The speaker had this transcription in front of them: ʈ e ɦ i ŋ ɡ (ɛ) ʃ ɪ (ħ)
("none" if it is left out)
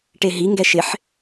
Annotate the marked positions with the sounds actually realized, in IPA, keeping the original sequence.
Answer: ɛ, ħ

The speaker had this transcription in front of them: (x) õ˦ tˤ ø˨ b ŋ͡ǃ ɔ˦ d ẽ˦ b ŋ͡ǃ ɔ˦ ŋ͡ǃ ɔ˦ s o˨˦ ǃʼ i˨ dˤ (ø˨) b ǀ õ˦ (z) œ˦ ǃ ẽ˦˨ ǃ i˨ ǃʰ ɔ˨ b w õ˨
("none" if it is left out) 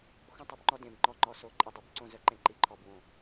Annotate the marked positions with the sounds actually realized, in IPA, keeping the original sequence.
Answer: x, y˨, z

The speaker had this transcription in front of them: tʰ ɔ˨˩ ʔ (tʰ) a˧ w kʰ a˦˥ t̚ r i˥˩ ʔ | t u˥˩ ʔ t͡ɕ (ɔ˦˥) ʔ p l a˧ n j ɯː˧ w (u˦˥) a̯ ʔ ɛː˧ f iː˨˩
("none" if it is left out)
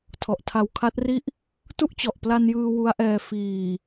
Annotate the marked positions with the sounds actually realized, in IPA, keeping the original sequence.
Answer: tʰ, ɔ˨˩, u˦˥

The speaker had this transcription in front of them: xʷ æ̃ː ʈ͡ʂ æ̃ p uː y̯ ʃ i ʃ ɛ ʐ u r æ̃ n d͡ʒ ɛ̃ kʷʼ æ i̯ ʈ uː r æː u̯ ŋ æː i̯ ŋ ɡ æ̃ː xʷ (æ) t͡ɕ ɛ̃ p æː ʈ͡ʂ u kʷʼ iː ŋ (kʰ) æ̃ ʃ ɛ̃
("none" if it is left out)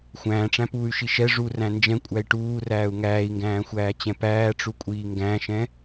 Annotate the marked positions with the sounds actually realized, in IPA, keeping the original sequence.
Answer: æː, ɡ

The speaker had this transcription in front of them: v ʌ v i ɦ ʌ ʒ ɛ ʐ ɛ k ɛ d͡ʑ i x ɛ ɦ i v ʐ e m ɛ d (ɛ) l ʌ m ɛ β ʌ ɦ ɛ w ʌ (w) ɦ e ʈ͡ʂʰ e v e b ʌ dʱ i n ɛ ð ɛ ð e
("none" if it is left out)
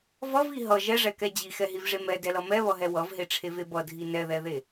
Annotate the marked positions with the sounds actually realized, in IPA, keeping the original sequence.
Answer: ɛ, v

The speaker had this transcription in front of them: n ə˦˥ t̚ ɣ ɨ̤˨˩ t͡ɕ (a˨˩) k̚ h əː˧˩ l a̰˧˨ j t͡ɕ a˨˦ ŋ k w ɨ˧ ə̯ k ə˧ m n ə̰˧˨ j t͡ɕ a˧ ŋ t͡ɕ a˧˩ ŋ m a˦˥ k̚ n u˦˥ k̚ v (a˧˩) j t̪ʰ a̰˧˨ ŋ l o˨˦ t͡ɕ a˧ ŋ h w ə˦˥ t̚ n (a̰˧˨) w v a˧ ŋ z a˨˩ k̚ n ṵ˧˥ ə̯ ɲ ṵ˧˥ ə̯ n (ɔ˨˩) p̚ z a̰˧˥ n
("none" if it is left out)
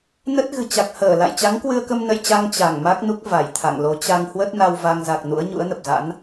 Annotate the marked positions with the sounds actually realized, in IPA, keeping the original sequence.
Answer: a˨˩, a˧˩, a˧, ə˨˩

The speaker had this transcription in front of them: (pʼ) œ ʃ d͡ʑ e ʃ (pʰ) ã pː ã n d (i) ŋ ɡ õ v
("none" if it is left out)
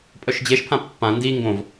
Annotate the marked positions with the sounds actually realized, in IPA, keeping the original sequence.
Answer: pʼ, pʰ, i

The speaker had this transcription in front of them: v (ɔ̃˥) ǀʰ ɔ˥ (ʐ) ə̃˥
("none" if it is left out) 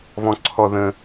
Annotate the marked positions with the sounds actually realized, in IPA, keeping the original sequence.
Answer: ɔ̃˥, ð

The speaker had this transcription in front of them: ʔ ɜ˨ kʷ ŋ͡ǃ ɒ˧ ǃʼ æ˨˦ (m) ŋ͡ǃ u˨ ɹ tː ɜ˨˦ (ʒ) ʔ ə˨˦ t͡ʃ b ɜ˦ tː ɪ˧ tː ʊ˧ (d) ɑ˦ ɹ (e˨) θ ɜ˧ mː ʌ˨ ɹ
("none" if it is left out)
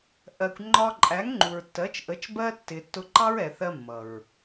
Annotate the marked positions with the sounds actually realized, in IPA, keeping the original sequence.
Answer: ŋ, t͡ʃ, ǃ, ɛ˨

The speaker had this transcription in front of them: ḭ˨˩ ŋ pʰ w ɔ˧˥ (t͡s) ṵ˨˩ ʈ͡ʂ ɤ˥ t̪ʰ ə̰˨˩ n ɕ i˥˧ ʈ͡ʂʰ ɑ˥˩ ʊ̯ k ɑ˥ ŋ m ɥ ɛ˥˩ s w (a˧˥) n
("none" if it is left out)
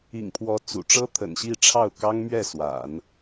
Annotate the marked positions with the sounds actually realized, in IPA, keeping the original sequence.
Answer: t͡s, a̰˨˩˦

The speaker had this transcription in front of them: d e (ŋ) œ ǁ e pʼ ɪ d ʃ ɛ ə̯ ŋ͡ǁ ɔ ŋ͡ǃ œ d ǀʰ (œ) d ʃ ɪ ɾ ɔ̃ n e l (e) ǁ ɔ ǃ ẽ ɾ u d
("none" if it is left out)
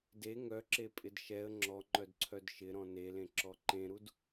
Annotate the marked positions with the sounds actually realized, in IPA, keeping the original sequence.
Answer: ŋ, œ, ẽ

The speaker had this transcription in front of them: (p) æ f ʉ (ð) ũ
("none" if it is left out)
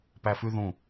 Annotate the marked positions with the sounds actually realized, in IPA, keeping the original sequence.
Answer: p, ð

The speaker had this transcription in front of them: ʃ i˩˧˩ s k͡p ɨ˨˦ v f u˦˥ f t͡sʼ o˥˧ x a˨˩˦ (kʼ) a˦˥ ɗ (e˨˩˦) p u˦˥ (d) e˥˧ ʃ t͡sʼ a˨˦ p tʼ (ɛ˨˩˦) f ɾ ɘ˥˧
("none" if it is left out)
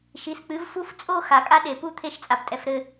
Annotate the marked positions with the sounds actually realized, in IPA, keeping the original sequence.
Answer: kʼ, e˨˩˦, t̪ʰ, ɛ˨˦

